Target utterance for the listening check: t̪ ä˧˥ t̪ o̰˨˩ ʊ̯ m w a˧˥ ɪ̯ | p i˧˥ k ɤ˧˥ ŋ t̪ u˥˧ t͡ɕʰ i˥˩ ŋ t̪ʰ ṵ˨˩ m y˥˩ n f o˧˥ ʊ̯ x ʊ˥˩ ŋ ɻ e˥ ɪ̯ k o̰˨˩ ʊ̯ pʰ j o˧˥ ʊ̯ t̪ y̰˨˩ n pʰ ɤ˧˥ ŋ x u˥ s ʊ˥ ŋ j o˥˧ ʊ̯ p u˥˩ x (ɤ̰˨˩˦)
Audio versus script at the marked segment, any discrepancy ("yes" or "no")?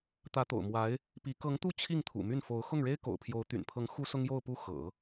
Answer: no